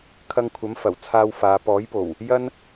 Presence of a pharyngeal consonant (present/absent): absent